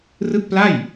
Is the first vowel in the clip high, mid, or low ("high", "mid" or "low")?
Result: high